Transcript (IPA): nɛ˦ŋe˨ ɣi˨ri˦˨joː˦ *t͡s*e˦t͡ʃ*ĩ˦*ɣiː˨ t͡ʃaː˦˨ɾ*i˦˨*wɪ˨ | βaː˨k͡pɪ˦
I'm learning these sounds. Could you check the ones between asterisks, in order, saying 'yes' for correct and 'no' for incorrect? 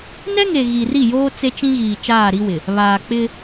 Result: yes, yes, no

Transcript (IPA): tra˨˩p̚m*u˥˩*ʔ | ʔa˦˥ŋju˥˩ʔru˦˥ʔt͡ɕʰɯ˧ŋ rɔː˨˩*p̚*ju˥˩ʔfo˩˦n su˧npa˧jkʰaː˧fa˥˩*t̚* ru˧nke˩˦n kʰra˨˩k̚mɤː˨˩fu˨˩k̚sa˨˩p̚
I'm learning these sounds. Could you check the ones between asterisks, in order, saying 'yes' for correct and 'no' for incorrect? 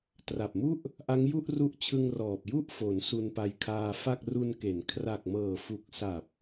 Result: yes, yes, no

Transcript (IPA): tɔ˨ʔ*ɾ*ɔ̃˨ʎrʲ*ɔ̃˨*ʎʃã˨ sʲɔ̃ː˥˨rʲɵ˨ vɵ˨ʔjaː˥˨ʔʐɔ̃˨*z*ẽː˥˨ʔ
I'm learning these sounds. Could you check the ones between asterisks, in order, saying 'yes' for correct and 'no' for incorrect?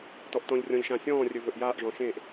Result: no, yes, no

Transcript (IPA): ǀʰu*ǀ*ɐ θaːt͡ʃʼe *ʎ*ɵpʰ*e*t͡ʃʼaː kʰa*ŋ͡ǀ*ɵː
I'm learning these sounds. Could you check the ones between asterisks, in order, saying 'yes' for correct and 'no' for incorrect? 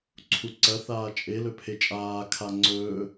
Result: yes, no, yes, yes

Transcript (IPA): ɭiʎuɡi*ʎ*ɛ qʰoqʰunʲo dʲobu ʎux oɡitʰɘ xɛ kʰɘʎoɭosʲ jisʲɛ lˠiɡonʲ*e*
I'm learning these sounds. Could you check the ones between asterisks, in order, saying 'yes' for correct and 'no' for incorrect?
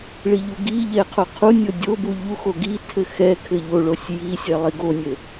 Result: yes, no

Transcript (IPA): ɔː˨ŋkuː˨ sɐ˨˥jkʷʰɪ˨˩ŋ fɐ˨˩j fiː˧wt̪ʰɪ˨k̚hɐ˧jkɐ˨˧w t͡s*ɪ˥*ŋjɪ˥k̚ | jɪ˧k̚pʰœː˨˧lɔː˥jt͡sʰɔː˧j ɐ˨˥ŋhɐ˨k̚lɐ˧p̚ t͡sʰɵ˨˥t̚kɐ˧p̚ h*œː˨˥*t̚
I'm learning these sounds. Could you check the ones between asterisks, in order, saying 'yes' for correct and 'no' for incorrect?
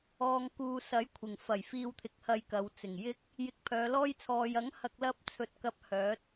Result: no, yes

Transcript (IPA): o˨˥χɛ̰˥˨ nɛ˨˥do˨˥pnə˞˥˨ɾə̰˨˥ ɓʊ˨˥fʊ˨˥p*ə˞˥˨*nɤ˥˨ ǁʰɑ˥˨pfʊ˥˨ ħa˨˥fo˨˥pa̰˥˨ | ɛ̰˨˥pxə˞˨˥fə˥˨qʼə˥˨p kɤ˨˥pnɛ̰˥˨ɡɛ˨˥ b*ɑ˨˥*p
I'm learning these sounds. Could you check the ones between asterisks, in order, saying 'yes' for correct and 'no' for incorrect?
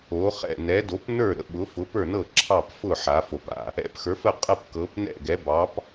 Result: yes, yes

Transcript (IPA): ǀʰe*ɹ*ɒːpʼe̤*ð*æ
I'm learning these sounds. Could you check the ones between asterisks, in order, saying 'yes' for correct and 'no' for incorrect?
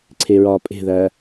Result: yes, yes

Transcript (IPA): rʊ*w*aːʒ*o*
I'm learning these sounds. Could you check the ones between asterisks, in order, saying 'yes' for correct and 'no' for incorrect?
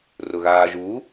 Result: no, no

